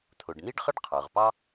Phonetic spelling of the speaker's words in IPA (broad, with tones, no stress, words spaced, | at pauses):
t̪ʰʊ˩ɖn̪i˥ɖχə˥ɖ qʰə˞˩ʁpɑ˥